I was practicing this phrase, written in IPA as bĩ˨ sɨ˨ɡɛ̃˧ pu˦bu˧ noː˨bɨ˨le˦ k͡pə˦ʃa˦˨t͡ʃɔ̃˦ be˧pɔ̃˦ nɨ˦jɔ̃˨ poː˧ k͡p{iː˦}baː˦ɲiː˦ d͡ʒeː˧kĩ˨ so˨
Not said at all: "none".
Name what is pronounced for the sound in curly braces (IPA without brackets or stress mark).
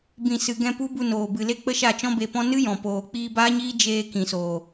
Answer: iː˧